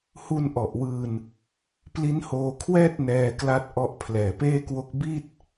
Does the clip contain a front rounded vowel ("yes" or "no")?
no